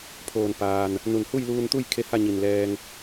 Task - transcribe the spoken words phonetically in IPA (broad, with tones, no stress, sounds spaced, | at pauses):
pʰ oː˧˩ n p aː˩ n | n u˧˩ n h u˥˨ j l uː˧ n t̪ u˥˨ j kʰ e˧˥ h a˥˨ ɲ i˧˩ n l ɛː˧ ŋ